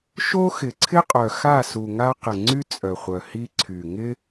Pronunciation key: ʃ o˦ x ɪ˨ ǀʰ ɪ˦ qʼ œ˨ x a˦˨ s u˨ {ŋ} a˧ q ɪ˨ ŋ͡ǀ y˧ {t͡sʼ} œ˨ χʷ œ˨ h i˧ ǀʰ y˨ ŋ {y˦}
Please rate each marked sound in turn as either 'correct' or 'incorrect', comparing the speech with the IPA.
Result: correct, correct, incorrect

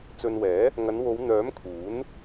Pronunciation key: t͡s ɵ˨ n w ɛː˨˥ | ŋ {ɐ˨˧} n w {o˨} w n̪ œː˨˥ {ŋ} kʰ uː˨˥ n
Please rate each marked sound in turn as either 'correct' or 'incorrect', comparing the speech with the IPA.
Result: correct, incorrect, incorrect

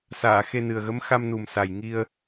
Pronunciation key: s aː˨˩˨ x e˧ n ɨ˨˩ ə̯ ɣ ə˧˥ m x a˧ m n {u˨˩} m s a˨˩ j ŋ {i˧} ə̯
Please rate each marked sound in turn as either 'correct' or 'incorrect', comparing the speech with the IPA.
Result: correct, correct

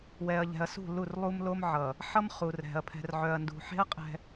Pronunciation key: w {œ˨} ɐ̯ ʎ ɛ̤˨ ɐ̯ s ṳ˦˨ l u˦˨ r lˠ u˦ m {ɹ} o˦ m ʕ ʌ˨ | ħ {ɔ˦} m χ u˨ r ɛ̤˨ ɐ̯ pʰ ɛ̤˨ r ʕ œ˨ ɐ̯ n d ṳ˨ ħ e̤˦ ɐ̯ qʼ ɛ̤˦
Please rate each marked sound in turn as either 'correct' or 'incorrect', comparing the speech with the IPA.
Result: incorrect, incorrect, incorrect

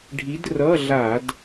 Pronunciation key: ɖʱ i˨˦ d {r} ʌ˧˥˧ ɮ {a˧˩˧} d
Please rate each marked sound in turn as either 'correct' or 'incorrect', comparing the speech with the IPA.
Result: correct, correct

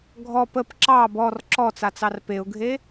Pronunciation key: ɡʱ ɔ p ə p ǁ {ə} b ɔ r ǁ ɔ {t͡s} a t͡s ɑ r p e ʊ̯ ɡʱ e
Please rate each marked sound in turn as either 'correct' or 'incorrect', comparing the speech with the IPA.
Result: incorrect, correct

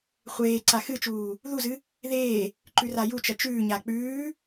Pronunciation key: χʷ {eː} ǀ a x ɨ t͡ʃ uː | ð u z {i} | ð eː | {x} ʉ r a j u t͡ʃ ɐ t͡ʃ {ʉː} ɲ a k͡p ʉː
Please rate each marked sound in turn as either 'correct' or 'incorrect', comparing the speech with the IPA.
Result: correct, incorrect, incorrect, correct

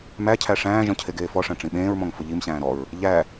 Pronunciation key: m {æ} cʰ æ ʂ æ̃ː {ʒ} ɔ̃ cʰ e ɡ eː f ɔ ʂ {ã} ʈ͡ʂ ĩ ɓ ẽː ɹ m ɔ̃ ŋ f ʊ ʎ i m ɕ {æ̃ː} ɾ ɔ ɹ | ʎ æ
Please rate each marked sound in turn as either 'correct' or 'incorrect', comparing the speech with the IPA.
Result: correct, correct, incorrect, correct

